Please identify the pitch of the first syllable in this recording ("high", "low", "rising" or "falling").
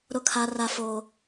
falling